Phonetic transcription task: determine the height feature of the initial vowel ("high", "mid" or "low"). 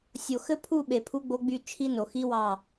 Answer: mid